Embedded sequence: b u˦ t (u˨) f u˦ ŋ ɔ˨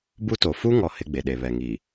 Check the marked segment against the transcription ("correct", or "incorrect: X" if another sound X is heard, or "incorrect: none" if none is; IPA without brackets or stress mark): incorrect: o˨